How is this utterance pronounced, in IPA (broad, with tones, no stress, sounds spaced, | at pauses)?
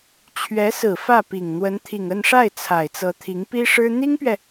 t͡ɕʰ ɥ ɛ˧˥ s ɹ̩˨˩ f ä˥˩ p i˨˩ ŋ n̪ w ə˧˥ n t̪ʰ i˨˩ ŋ ə˥˧ n ʂ a˥˩ ɪ̯ t͡sʰ a˨˩ ɪ̯ t͡s ɤ˧˥ t̪ʰ i˧˥ ŋ p i˥ ʂ ɻ̩˥ n̪ i˥ ŋ p ɥ ɛ˨